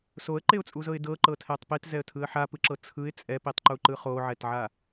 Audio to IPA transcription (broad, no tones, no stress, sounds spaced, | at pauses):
s o ə̯ ǃ e ʊ̯ t͡sʼ u z ɤ ɪ̯ d ɤ ǃ ɤ tʰ ɛ tˤ p i t z ɛ ə̯ tʰ ɯ ə̯ ħ a p ɯ ǁ ɤ t͡sʰ ɯ ɪ̯ t͡sʼ ɛ p i tˤ ǃ u ǃ ɯ χ o ʕ ɛ t ʕ a